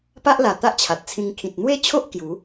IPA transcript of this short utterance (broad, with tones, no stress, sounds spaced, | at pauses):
p a˦ ʔ l a˨˩ t̪ a˦ ʔ t͡ɕʰ a˨ t̚ t͡sʰ ĩ˧ ŋ kʰ ĩ˨ t̚ n̪ w e˦ t͡ɕʰ o˦ ʔ k j u˨˦